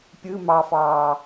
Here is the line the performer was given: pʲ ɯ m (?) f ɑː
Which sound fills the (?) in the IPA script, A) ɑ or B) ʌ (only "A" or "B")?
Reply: A